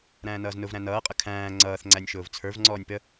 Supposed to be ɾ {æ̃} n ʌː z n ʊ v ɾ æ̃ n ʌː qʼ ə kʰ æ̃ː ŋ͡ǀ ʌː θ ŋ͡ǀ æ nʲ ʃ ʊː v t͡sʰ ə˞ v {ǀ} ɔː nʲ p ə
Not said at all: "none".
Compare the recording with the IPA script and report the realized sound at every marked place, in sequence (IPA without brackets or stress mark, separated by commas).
æ̃ː, ŋ͡ǀ